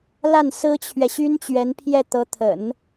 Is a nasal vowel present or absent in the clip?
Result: absent